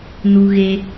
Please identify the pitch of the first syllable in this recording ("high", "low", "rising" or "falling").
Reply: high